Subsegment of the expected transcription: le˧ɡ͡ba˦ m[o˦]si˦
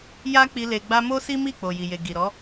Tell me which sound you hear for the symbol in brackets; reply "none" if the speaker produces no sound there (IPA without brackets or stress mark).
o˦